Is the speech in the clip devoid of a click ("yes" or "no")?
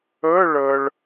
yes